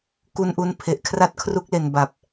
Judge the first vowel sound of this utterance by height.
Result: high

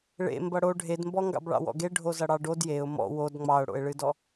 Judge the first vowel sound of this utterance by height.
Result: mid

